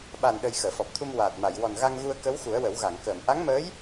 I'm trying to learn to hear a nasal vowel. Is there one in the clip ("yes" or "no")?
no